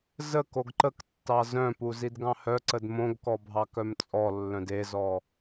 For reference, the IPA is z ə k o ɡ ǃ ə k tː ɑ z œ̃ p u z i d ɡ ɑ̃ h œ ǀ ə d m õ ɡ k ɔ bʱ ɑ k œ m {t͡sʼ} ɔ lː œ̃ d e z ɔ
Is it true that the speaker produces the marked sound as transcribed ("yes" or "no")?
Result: yes